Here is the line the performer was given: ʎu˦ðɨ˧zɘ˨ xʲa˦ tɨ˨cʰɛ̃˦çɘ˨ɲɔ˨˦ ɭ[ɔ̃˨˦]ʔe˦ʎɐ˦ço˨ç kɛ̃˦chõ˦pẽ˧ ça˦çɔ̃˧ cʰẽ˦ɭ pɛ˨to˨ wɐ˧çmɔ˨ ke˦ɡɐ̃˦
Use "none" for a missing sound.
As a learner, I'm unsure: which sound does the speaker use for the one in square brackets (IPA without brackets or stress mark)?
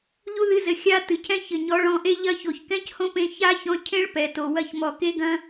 ɔ̃˨˦